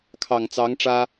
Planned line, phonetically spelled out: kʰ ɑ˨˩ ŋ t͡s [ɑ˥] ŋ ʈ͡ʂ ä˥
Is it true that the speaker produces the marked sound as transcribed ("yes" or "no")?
no